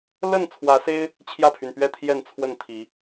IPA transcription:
l ə˥˨ n t͡sʰ w ä˨˦ s e˦ ɪ̯ | t͡ɕʰ j ä˥˨ pʰ y˩ n p ɥ ɛ˥˨ t̪ʰ j ɛ˥˨ n t͡sʰ w ə˥˨ n t̪ʰ i˨˦

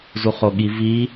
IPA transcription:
z u χ o ɠ i v i

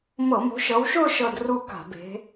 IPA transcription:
m ɤ˧˩˧ m o̤˨˦ ʃ ɤ˨˦ w ʃ ʊː˥˧ ʃ ɤ˥˧ d r u˥˧ k a̤˧˩˧ b e̤˨˦

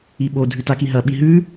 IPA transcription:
i ɓ o dʱ ʉ t a k i ɦ ɐ ɓ i ɦ ʉ

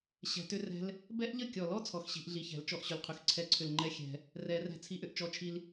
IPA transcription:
ɕ ɛ̤˨˥ t ʏ˦˥ r ɛ̤˦˥ l | b ɛ˦˥ ʔ ʎ ə˥˩ kʲ ɔ˨˩˦ l ɔ˦˥ t͡sʰ ɔ˨˥ x ɕ i̤˨˩˦ ʔ ɮ i˧˩ ç ɛ̤˨˩˦ l t͡ʃ ɔ˥˩ ʔ ɕ ʏ˧˩ l qʰ ʏ˧˩ x ǀʰ ɛ˥˩ ǀʰ ʏ˥˩ l ŋ͡ǃ ɛ˦˥ xʲ ɛ̤˨˩˦ | r ɛ˨˩˦ r ɛ̤˧˩ t͡sʰ i˦˥ ʔ ʏ˧˩ ʔ t͡ʃ ɔ˦˥ t͡ʃʰ i˦˥ l

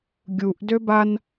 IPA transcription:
ɡʲ u ʔ d ø b a n

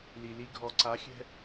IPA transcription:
l i˩ l i˧ ɡʱ ɔ˩ ǀ a˩˧ xʲ ɛ̤˧

